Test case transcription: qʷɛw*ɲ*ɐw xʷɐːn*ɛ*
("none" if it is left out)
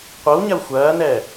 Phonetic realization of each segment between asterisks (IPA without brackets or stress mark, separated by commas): ɲ, ɛ